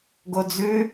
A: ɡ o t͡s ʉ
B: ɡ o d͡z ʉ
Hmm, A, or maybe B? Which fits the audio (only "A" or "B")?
B